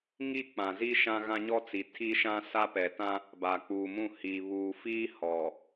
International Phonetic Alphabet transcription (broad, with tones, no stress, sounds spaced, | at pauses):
ŋ i˦ k͡p ã˨ z i˦ ʃ ã˦ ɣ ã˦ ɲ ɔ˦ t͡s i˨ tʰ i˦ ʃ ã˦ s a˦ p ɛ˨ t ã˦ | b a˨ k͡p uː˨ m ũ˦˨ h iː˨ β uː˨ f iː˦ h ɔ˨